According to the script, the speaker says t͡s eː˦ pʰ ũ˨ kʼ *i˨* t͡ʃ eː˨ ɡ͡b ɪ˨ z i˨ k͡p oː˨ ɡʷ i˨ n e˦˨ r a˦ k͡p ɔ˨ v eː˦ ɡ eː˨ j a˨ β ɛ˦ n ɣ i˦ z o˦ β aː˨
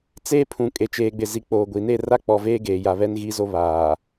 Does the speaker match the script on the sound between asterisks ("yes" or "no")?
no